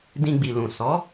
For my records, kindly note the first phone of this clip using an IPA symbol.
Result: d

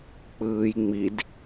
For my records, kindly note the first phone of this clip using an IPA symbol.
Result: k͡p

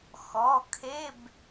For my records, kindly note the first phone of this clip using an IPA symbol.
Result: x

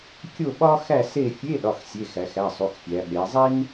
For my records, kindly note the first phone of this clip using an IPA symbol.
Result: kʲ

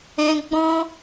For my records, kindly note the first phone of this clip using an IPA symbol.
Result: ɛ̃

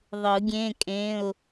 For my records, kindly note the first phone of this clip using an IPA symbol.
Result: ðˤ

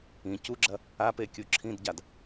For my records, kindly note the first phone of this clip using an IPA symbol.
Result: ĩ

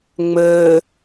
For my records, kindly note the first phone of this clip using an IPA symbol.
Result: ŋ͡m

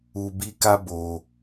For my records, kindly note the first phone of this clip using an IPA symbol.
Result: u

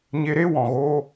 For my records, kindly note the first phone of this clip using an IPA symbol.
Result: ɲ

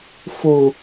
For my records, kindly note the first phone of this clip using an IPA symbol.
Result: f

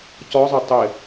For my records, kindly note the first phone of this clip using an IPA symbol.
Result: c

